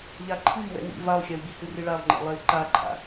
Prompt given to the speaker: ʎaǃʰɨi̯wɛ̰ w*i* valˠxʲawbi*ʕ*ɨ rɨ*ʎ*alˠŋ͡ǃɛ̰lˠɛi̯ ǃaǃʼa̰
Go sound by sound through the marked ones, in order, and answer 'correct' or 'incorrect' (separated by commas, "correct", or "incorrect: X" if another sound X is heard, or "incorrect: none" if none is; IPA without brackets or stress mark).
incorrect: ḭ, incorrect: h, incorrect: ɭ